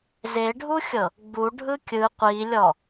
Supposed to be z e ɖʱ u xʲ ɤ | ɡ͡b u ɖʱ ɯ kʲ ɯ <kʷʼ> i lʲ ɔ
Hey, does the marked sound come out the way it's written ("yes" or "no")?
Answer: no